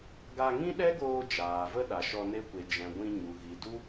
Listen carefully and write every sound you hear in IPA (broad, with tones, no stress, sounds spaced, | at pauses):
ɡ a˧ ŋ ĩ˦ ɗ ɛ˦ ɡ oː˧ d͡ʒ aː˨ v ə˦ ɗ a˨ ʃ ɔ˧ n e˧ kʷ e˨ d͡ʒ ɛ̃˨ ɡʷ ĩ˧ ɲ u˨ ɣ i˨ d u˦